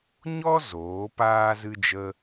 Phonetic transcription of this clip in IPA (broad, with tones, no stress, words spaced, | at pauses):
ɲɔ˦ zoː˨˦paː˦ zɨ˦d͡ʒə˦